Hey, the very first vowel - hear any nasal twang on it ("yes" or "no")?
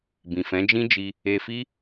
yes